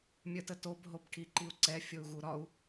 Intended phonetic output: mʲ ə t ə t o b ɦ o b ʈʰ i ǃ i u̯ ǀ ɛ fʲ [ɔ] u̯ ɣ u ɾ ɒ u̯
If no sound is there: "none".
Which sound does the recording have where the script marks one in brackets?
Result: o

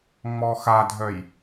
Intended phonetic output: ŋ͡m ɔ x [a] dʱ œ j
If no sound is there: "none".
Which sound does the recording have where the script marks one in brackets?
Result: a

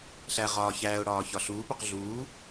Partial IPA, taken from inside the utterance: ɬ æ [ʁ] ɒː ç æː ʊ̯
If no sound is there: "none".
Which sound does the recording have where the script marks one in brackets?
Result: ʁ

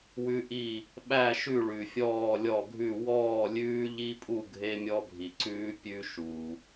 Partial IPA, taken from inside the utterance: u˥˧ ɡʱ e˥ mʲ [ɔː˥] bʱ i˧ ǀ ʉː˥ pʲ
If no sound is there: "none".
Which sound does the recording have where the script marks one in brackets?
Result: ɔ˥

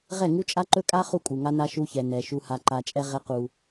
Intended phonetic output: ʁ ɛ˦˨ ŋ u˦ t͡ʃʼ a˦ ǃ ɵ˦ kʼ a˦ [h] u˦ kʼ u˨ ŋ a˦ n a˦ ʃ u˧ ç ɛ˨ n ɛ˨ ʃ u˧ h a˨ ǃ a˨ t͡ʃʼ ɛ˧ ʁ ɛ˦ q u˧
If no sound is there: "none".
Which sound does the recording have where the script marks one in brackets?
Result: χ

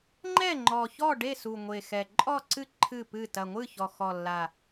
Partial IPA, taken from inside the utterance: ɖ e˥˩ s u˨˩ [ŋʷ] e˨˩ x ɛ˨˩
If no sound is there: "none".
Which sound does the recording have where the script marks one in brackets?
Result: ŋʷ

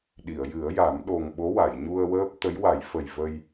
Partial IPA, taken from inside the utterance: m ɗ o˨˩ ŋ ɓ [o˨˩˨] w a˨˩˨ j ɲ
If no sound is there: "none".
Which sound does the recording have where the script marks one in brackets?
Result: o˧˥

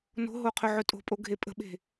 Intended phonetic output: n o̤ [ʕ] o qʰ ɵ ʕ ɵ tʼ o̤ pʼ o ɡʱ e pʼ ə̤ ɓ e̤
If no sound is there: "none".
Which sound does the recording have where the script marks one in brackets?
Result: ɦ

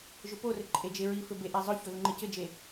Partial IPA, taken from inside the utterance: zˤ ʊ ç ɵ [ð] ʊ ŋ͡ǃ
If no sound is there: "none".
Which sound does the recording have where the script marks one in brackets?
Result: ð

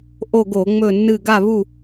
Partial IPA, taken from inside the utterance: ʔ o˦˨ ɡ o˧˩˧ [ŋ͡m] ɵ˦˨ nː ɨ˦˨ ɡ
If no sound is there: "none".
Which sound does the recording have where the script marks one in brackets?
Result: ŋ͡m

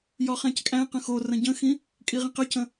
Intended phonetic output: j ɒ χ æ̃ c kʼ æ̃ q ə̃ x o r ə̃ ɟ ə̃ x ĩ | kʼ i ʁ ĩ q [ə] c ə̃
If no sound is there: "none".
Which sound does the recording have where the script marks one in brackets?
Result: ə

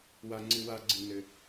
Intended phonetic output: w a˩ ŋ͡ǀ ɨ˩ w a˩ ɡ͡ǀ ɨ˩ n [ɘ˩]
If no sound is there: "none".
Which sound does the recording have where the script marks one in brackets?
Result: ɘ˩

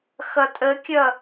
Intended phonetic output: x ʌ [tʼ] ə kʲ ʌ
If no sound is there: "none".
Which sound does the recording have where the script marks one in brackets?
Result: tʼ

